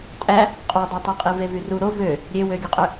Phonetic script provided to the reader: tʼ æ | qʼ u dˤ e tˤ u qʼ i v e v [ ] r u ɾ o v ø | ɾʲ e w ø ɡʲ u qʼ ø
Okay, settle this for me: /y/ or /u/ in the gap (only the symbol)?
y